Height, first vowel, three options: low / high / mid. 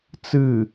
high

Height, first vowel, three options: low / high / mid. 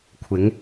high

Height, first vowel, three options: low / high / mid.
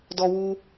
mid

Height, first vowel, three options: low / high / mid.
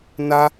low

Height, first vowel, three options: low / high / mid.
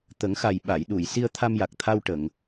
mid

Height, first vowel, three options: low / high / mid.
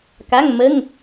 low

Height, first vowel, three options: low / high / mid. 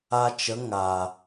low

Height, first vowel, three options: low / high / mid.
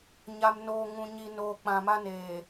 low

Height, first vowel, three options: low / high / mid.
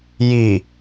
high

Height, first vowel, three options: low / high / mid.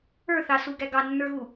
mid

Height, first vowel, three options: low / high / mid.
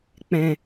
mid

